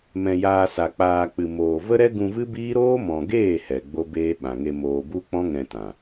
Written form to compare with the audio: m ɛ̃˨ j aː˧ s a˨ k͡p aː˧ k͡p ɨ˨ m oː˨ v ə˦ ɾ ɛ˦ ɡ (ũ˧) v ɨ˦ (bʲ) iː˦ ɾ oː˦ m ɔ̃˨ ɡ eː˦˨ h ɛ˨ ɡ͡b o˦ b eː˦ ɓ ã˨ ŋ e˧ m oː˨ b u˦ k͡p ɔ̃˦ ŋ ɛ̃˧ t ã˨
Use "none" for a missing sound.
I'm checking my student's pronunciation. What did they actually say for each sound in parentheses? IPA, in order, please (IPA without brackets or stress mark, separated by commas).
ũ˧, b